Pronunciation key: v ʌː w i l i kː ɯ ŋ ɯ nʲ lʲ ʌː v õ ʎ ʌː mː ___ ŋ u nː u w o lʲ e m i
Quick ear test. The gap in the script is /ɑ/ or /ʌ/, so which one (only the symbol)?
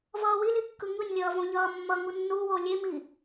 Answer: ʌ